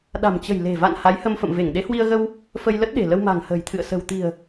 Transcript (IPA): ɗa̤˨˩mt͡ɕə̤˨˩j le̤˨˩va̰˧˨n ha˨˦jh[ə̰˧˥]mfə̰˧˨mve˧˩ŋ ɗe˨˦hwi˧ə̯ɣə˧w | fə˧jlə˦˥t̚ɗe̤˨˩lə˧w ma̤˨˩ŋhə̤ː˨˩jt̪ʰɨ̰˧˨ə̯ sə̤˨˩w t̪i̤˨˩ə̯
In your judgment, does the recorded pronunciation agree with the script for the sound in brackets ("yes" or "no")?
no